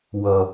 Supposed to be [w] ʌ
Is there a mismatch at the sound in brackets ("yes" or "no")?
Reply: no